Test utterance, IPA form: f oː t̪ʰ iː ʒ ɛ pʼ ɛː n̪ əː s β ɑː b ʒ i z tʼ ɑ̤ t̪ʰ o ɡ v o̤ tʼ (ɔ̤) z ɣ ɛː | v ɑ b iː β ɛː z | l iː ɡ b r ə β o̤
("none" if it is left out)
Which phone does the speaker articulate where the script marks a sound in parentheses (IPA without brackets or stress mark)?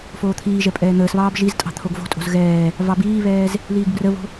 o̤